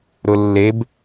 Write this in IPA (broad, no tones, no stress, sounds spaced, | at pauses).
ɾ ʊ lː e b